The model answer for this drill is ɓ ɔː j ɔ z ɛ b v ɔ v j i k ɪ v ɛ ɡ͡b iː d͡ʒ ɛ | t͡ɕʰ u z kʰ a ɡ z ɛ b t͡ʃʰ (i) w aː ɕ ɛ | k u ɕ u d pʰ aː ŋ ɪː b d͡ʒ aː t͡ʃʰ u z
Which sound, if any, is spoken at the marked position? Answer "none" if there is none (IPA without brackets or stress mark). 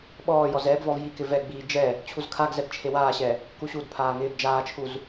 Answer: e